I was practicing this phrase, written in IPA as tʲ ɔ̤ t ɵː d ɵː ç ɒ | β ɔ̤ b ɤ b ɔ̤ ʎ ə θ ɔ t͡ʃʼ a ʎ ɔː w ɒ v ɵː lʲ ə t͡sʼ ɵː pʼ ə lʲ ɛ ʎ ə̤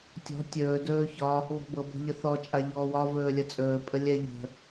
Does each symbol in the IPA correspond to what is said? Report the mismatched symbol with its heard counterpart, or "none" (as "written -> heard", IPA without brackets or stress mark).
t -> tʲ